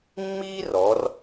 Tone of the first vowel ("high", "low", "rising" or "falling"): high